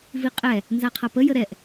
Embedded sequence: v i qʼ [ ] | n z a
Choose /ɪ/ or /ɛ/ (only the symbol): ɛ